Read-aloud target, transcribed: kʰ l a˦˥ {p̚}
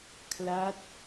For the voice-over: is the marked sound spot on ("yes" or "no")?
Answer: no